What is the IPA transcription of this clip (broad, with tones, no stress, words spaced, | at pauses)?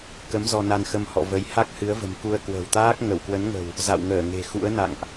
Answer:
kə˨˦m zɔ˧na˧nxə˧mhɔ̰˧˨ və˨˦j ha˦˥k̚hɨ˨˦ə̯və̤˨˩m ku˧ə̯kwə̤˨˩wt̪aː˦˥k̚ ŋə˧˩wkwə˨˦nŋə̤˨˩w | za̰˧˨wŋəː˧˩ ŋe̤˨˩xṵ˧˥ə̯ na̰˧˨ŋʔ